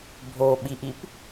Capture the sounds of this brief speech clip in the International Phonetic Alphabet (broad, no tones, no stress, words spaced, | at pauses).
bʱoɓiʔip